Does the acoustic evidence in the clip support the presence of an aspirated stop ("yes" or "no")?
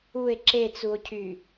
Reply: yes